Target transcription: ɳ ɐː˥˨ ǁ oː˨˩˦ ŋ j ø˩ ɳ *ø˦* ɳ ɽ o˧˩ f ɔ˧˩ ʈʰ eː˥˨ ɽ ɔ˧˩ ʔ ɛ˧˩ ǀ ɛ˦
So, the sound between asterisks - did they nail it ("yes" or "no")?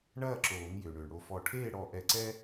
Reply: no